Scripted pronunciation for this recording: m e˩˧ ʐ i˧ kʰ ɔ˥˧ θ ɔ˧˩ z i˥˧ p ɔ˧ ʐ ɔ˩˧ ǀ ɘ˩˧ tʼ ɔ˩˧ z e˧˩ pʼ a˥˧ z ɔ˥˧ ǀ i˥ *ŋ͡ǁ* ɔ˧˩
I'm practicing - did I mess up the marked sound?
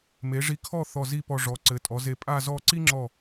no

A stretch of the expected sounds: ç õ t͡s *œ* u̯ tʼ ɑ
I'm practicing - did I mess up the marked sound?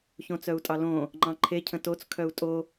no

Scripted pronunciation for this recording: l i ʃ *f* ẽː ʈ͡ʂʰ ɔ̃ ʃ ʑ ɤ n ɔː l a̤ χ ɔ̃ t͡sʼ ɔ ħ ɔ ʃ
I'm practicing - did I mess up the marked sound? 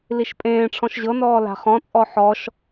yes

